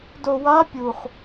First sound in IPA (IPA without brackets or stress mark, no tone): d